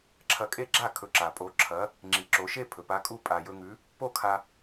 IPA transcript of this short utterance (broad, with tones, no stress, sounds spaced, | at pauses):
ǁʰ ɐ˧ kʼ e˥˨ ɡ͡ǁ a˥˨ kʰ ɵ˨˥ ǁ a˩ pʼ o˨˥ ǁʰ ɐ˨˥ | ŋ͡ǁ i˩ ǁ o˩˧ ʃ e˥˨ pʰ ɵ˩ p a˨˥ kʼ u˥˨ pʼ a˩ j ɵ˧ ŋ ʉ˨˥ | p o˥˨ kʰ a˧